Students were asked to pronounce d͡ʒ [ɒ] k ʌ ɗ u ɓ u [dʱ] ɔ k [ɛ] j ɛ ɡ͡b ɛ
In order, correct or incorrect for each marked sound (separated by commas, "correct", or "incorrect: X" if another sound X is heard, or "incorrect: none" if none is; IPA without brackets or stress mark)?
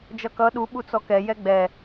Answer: incorrect: ʌ, incorrect: t͡s, correct